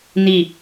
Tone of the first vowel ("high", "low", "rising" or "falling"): falling